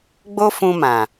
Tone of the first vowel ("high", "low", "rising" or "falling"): high